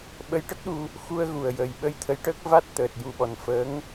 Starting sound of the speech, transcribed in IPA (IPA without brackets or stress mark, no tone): ɓ